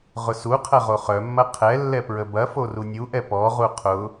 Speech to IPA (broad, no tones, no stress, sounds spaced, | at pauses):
ʁ ʊ s u qʰ ɐ ʁ o χ œ mː ɐ qʰ ɛ lː ɛ p ɹ ə b ɐ f o r u nʲ u ʔ ɛ p ɔ ʁ u qʰ ʊ